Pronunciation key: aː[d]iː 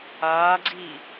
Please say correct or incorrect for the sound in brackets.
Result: incorrect: ɡ͡ǀ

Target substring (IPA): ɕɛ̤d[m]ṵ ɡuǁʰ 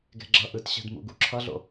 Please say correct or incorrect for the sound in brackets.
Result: correct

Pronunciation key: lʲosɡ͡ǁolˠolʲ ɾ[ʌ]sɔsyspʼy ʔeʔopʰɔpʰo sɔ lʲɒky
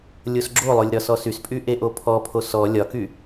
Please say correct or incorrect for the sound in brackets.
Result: incorrect: ɒ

